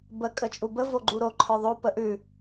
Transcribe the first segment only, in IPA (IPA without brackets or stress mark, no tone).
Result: b